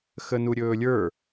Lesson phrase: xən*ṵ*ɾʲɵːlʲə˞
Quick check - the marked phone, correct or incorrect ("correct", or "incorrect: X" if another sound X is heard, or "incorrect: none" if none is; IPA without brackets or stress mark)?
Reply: incorrect: u